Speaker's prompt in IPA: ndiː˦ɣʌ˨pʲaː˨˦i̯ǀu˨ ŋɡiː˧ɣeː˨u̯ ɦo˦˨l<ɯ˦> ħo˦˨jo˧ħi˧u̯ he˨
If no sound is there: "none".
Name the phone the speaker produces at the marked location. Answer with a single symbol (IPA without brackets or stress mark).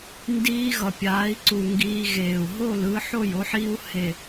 ɯ˧